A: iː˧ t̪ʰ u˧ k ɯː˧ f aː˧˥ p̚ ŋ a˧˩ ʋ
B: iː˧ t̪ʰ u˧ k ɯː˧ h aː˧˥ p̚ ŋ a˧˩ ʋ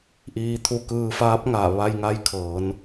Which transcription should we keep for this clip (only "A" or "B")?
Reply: A